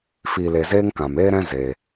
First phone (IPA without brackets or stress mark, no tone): f